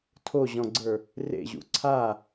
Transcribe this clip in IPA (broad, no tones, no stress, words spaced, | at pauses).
tʰoʑɔ̃ɡ͡ǀə˞ | rḛʑṵ ǀʰa